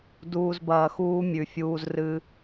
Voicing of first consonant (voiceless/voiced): voiced